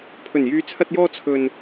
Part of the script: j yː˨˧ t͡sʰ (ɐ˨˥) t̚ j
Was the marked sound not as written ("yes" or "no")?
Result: yes